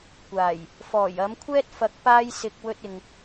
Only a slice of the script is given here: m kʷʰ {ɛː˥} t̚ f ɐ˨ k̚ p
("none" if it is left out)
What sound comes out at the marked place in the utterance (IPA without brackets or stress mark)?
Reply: ɛː˥